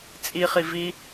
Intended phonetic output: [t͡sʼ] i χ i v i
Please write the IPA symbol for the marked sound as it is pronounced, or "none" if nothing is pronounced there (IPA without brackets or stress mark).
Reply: t͡sʼ